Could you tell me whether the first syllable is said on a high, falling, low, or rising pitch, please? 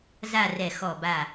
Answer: falling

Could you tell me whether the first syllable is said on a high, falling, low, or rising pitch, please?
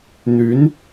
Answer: rising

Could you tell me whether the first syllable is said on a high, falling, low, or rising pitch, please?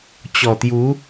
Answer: low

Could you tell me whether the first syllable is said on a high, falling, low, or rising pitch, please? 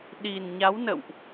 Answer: low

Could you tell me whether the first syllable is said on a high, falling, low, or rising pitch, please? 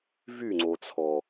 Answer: falling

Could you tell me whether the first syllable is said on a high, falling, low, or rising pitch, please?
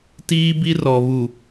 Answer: high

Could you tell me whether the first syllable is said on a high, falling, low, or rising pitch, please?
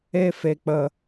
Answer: high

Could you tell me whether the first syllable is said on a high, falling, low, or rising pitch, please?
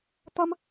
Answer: high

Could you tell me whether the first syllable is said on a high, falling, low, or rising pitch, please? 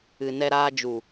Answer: low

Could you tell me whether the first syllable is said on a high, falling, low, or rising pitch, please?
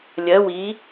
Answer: rising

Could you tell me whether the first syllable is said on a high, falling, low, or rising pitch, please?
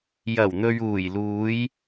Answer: low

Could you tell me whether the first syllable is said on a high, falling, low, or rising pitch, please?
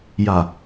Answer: low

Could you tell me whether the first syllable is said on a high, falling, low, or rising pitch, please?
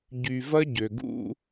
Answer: low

